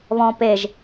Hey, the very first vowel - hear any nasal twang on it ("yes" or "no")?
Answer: yes